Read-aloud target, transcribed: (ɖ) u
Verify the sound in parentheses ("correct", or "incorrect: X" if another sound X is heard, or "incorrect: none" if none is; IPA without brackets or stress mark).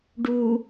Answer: correct